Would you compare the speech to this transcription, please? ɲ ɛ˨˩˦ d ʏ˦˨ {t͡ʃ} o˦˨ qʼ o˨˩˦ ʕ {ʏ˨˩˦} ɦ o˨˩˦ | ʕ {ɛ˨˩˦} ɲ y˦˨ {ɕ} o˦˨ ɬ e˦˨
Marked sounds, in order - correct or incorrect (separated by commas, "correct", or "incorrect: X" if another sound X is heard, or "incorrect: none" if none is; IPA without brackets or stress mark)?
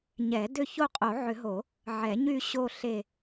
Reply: incorrect: ç, correct, correct, correct